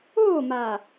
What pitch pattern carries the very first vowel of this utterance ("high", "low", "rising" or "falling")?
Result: falling